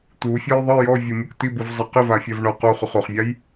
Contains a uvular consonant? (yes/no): yes